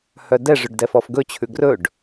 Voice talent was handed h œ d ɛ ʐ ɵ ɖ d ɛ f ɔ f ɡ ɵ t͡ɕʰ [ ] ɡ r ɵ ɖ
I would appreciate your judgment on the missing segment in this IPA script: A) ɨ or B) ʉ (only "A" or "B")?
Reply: B